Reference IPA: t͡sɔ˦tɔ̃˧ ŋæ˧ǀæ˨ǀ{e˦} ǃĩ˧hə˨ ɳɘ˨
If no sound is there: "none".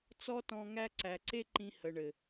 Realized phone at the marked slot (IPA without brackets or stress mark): e˦